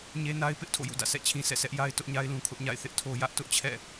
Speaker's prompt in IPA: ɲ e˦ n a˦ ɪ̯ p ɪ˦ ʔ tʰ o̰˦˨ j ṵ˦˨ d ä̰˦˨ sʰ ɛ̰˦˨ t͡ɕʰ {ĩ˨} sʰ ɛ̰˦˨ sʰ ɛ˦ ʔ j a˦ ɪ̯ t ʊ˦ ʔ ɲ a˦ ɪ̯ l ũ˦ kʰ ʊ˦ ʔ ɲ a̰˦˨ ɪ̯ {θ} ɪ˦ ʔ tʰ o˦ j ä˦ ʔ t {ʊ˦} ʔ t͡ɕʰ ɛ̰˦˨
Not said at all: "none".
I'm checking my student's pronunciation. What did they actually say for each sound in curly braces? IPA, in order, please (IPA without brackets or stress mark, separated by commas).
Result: ĩ˦, θ, ʊ˦